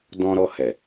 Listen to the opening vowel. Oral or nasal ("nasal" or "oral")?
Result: nasal